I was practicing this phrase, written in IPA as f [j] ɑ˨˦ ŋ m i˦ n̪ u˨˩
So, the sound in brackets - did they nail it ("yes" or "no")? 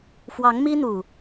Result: no